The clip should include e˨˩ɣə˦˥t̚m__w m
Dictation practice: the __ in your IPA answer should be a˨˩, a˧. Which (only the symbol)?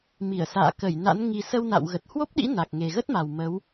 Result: a˨˩